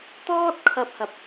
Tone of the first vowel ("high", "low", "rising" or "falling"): high